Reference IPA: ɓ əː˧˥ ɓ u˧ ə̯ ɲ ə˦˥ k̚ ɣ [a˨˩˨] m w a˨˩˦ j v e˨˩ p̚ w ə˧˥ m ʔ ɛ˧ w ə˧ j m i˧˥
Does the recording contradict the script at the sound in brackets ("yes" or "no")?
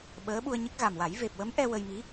yes